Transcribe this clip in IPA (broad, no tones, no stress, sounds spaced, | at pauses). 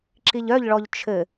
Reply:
ǁ i ʎ œ ʎ ɭ ɔ ʎ t͡ʃʰ ɘ